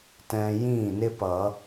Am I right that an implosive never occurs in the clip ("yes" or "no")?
yes